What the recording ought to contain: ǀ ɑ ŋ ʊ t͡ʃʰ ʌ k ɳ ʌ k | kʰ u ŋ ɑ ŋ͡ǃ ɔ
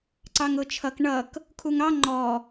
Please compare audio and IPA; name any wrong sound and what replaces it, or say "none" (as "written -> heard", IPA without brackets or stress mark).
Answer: none